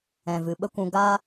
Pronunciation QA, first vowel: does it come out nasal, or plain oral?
nasal